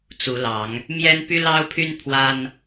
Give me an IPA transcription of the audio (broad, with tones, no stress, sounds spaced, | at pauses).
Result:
t͡s u˨˦ l ɑ˨˦ ŋ | m j ɛ˦ n p y˦ l ɑ˦ ʊ̯ pʰ y˦ n pʰ w a˦ n